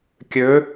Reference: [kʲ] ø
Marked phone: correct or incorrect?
correct